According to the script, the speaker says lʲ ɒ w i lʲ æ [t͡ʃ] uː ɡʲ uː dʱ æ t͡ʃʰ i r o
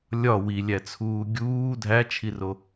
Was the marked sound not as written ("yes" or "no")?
yes